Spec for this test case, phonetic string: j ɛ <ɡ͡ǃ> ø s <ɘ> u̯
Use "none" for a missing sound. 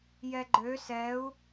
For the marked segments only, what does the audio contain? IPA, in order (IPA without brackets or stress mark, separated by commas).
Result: ɡ͡ǃ, ɛ